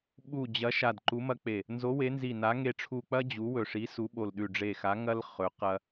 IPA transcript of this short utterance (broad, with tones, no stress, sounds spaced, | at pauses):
ɓ u˧˩ d͡ʑ ɐ˨˥ ʃ a˧˩ d ǃ u˨˥ m ɐ˦ k͡p e˧˩ | n z o˨˥ w e˨˥ n z i˧˩ n a˨˥ ŋ e˧˩ ʈ͡ʂʰ u˧˩ k͡p ɐ˦ d͡ʑ u˨˥ w ɵ˧˩ ʂ i˨˥ s u˨˥ ɓ o˧˩ l ɗ ʉ˧˩ ɖ͡ʐ e˧˩ x a˨˥ ŋ ɐ˦ l χ ɵ˨˥ q ɐ˦